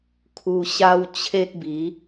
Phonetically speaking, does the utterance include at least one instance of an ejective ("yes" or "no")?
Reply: no